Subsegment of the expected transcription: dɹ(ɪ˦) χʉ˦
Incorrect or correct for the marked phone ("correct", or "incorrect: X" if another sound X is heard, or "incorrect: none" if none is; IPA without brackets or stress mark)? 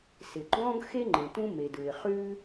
incorrect: ɪ˩